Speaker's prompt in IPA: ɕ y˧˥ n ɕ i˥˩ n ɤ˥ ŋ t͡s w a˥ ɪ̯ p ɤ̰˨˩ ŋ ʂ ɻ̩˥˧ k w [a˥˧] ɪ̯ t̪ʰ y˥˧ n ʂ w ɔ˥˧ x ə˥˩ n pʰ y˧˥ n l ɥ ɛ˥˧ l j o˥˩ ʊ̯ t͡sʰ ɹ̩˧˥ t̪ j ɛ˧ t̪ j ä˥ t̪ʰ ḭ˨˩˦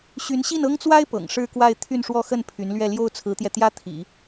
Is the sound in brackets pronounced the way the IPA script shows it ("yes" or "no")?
yes